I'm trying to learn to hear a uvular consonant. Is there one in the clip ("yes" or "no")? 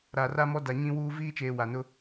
no